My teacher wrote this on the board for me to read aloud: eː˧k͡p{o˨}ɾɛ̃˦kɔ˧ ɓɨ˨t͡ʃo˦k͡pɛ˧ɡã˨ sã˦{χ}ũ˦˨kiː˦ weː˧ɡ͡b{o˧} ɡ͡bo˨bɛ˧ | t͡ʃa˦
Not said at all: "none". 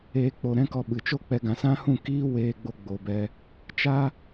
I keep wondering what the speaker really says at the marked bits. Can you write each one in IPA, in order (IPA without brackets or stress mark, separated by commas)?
o˨, h, o˧